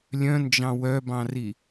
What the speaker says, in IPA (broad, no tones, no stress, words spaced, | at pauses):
lʲœ̃nd͡ʒɑ̃ wœbɑ̃ri